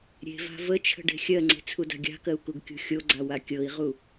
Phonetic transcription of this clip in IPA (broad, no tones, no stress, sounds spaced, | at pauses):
ɾʲ e̤ v a̤ v ə t͡ʃʰ ə̤ ɖ e̤ xʲ ɜ ŋ͡ǀ e̤ t͡sʰ u d a̤ ɡʲ a̤ k ɜ u̯ k u ɡ kʲ ṳ xʲ o ɡ͡ǀ a w a kʲ ɤ i̯ ʁ u